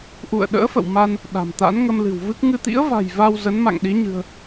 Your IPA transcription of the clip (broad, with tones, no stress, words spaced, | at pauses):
ʔṵ˧˨ə̯ɗə̰ː˧˥fə̰˧˨wma˧n | ɗa̤˨˩mt̪a̰˧˥n ŋə˧mlɨ̤˨˩wvɨ˦˥k̚ ŋɨ˧t̪ḭ˧˥ə̯va̤˨˩j va˧w zə˨˦nma̰˧˨ŋɗi˨˦ɲɨ̤˨˩ə̯